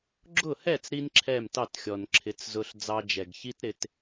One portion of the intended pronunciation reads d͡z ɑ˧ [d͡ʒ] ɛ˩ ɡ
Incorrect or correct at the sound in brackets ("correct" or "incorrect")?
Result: correct